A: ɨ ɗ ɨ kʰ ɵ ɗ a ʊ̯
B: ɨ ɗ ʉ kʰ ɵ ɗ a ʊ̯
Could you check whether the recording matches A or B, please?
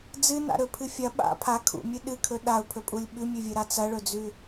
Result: A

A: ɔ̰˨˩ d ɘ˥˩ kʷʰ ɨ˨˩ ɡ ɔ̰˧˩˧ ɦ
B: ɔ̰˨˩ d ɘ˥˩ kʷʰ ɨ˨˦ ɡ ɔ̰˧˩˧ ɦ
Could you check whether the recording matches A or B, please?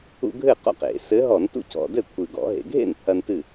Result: A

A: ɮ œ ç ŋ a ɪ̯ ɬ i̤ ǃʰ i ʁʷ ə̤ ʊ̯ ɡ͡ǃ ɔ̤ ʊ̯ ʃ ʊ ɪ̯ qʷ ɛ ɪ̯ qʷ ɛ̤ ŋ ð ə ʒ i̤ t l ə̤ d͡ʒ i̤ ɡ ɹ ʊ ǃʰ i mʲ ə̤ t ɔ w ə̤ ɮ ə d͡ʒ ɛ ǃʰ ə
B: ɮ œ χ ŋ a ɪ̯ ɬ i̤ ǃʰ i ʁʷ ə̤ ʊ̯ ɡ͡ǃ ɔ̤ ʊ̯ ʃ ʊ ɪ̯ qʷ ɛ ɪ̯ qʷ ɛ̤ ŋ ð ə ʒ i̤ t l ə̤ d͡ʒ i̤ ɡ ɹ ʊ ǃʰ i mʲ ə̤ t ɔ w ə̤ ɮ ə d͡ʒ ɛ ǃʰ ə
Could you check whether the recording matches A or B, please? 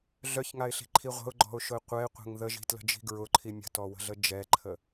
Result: A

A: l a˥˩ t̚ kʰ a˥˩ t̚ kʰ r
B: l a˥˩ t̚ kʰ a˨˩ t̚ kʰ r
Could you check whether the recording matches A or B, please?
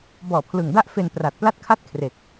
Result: A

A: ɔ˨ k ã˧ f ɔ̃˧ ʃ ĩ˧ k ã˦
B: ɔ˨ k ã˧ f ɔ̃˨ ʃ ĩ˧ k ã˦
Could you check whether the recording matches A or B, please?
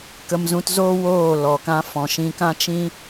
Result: B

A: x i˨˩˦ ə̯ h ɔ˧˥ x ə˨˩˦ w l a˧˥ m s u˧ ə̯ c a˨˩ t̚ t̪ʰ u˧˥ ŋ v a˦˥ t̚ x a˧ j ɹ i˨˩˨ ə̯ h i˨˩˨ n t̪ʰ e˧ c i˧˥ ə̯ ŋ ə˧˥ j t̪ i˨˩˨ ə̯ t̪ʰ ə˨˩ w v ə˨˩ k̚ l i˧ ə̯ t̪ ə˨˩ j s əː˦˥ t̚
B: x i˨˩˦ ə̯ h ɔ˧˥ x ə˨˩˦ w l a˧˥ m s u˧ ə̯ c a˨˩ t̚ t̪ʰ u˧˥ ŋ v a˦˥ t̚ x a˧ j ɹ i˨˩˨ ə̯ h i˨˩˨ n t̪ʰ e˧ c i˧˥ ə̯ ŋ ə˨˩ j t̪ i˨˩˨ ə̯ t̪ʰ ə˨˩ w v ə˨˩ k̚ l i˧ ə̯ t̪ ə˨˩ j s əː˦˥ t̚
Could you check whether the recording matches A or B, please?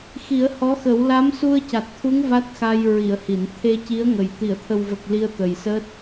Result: B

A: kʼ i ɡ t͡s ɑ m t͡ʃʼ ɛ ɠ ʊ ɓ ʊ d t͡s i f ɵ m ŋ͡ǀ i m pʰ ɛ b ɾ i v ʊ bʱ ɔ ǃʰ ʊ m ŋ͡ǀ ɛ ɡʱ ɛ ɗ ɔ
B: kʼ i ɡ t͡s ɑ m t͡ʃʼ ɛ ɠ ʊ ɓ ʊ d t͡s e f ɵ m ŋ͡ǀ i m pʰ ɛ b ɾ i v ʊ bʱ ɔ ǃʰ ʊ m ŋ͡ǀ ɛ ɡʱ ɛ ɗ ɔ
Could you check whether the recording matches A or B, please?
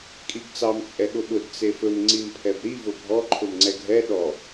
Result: B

